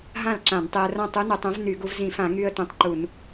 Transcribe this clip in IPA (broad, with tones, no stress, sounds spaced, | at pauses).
ɦ ã˥˩ l ǁ ã˧˩˧ n tˤ e˧ ə̯ r ã˥˩ tˤ u˧˥ n o˧˩˧ tˤ õ˧˥ v n y˧˩˧ ɡ u˧ v z ĩ˧˩˧ f ã˧˩˧ ŋ y˧ ə̯ t õ˧ tˤ ǃ u˧˩˧ n